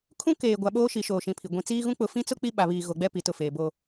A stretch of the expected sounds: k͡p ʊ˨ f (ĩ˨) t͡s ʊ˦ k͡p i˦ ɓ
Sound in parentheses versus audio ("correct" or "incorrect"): incorrect